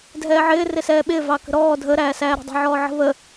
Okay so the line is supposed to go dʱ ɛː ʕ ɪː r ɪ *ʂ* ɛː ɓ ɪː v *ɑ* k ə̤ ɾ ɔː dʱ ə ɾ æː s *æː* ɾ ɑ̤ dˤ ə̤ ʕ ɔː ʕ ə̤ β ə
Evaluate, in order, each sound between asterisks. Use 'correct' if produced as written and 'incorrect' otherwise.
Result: incorrect: s, correct, correct

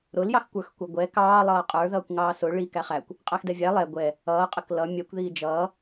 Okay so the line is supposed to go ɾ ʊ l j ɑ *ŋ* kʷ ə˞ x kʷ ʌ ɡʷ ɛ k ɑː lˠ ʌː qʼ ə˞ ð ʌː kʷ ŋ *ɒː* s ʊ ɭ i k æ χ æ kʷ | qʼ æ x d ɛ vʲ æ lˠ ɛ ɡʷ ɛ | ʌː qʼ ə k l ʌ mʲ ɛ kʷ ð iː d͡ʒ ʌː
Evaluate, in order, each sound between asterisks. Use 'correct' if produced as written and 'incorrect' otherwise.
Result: incorrect: x, incorrect: ɑː

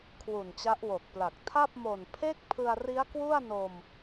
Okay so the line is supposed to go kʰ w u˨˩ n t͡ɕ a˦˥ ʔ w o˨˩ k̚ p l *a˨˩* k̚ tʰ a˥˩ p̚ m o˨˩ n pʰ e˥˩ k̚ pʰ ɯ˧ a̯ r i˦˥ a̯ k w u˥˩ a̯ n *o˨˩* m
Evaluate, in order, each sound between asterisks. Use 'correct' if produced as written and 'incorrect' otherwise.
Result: correct, incorrect: o˧

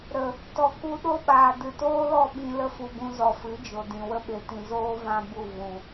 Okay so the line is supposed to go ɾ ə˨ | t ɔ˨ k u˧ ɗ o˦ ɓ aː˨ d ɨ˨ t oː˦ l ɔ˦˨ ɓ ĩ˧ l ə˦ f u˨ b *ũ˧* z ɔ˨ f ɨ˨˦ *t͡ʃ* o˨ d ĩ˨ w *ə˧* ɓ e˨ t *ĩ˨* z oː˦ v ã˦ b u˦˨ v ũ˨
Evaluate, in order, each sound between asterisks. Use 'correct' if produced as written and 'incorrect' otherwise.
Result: correct, incorrect: d͡ʒ, correct, correct

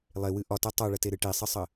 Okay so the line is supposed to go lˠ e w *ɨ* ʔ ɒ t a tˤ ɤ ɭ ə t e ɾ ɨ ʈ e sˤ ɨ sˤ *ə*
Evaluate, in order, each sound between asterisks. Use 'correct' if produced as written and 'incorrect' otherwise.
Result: correct, correct

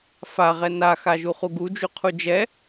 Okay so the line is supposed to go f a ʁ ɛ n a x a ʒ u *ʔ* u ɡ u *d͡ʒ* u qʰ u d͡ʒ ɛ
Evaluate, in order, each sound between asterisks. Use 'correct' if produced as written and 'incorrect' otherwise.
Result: incorrect: χ, correct

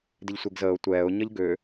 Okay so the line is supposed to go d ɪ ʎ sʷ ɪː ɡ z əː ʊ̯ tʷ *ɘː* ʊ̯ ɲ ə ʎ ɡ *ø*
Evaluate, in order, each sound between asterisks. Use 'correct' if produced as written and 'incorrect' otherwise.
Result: incorrect: ɛː, correct

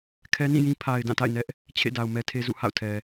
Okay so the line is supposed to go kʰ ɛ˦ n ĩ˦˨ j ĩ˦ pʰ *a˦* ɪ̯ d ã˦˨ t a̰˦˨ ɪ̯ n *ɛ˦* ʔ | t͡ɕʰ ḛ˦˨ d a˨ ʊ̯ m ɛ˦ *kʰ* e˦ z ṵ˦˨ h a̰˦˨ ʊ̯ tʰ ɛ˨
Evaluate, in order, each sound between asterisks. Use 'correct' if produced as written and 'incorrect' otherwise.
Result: incorrect: a˨, correct, incorrect: tʰ

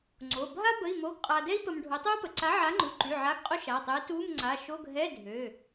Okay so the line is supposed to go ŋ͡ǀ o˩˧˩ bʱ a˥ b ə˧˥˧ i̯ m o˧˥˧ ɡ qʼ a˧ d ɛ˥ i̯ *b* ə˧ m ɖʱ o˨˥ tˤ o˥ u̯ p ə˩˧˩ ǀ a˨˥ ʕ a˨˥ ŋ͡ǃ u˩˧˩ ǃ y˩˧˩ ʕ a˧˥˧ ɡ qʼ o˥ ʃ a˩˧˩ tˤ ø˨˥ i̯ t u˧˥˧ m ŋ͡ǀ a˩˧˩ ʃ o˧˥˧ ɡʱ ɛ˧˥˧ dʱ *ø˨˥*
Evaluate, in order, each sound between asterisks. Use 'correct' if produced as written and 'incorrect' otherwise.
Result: incorrect: p, incorrect: ø˩˧˩

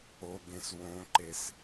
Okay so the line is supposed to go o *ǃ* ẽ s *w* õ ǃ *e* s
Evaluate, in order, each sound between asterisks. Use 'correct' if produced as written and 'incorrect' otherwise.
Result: incorrect: ɡ, correct, correct

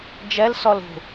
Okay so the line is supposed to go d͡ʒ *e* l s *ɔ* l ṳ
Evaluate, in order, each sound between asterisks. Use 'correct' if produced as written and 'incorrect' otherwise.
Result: incorrect: ɛ, correct

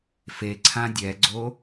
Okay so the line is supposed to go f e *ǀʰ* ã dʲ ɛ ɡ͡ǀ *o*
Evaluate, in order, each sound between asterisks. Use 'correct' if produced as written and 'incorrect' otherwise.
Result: correct, correct

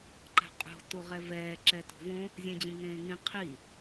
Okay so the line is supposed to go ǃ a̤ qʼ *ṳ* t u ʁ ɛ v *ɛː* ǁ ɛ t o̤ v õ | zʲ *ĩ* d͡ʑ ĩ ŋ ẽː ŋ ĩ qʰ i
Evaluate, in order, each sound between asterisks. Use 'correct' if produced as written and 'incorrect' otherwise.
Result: incorrect: o̤, correct, incorrect: ẽ

